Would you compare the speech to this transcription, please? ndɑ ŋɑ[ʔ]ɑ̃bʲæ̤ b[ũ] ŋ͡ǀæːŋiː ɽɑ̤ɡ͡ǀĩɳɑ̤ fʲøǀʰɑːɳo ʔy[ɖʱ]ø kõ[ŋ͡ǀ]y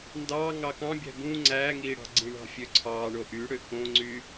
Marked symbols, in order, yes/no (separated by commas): no, yes, no, yes